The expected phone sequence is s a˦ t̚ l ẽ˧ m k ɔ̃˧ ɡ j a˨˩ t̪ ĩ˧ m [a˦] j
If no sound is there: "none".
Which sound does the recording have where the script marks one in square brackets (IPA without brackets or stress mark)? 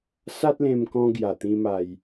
a˧